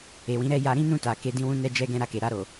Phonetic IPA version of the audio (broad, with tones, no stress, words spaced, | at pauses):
e˨wĩ˨˦ɾɛ˦˨ ja˧ ɾĩ˦nũ˦˨ta˨ ke˨˦dĩ˧wũ˧nɛ˧ d͡ʒɛ˧ɡɛ̃˧ ɾa˧ke˨ ɾa˧ɾo˨